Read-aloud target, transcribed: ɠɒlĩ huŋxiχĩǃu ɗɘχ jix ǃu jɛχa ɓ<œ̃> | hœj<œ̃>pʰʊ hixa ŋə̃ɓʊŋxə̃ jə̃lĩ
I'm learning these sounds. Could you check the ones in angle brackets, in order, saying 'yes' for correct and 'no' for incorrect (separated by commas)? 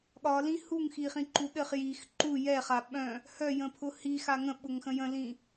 yes, no